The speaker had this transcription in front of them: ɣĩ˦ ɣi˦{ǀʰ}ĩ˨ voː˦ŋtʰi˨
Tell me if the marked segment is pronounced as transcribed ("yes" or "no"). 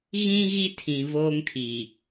no